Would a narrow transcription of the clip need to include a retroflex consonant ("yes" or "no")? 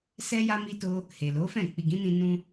no